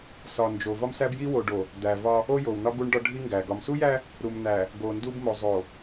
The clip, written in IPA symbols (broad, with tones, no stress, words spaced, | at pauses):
sɒ˨nd͡ʒo˨ vɒ˦msæ˦bji˦wo˨ ɖo˨ | d̪æ˨vɒ˦ | o˦jo˨wnɒ˦ ɡu˦ɳɖɒ˦ɖʱi˦ŋɡæ˨ ɡɒ˨msu˦jæ˦ | ɾu˨mn̪æ˨ | ɡo˨ndu˦bmo˨ zˤo˨